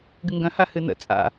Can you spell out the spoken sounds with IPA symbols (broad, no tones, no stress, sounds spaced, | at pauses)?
ɡ ɨ ŋ ɡ œ̃ h a h ɨ n ə̰ t͡sʼ a̰